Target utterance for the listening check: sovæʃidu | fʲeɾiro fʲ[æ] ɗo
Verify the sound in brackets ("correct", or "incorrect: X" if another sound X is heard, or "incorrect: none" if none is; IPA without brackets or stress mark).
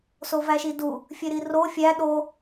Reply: correct